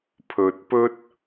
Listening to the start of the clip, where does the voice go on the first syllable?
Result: low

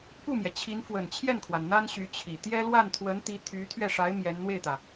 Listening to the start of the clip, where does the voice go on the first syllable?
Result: falling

